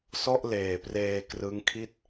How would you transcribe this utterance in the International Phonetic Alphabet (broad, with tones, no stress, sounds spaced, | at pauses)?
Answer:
s ɔ˥˩ ʔ l eː˨˩ p r eː˧ k r ɯ˦˥ ŋ kʰ i˥˩ t̚